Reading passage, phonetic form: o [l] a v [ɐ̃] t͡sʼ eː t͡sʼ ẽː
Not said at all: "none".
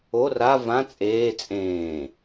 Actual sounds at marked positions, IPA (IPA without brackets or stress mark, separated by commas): r, ã